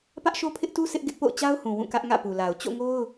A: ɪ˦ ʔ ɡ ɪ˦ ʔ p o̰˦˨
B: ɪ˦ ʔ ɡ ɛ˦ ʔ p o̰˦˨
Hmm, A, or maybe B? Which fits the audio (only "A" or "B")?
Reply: A